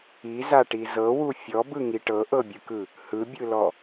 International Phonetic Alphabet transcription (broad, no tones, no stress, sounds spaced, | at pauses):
i z a ʈ i z ɤ w u fʲ ɔ b ɯ ŋ i ʈ ɤ ʔ ɤ bʲ ɯ k ɯ | h ɯ bʲ ɯ l ɔ